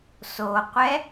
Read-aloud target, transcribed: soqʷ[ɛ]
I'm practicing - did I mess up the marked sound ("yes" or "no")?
no